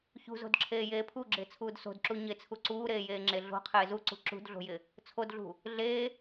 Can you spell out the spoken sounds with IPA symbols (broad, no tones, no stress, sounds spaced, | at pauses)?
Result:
ç ṳ z o̤ d ǁʰ eː j eː pʰ u ɡ͡ǁ ɪː t͡sʰ uː d s o̤ d ǁ u ɲ ɪ t͡sʰ u ǀ uː ɾ eː j eː ŋ͡ǁ e ɮ o̤ qʰ ɪː z u ǀ ṳ ǁ ṳ d ɮ o̤ j ɪ | t͡sʰ o d ɮ ṳ | ɮ eː